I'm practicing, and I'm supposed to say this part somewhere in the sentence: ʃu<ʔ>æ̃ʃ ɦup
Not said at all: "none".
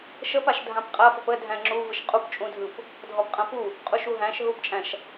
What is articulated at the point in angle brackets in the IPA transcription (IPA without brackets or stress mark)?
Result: ɦ